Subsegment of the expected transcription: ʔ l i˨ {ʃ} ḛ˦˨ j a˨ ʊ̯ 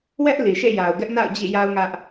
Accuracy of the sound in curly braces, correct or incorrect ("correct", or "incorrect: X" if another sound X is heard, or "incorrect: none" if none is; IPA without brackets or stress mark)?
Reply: correct